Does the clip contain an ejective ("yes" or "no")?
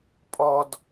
yes